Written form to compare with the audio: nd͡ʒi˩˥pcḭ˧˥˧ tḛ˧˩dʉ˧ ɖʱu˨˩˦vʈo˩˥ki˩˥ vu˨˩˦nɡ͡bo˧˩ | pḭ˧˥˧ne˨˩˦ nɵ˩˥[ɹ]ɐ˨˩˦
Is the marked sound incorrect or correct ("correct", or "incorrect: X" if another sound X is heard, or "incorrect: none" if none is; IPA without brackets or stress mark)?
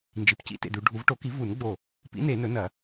incorrect: n